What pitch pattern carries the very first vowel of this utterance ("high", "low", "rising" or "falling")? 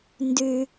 low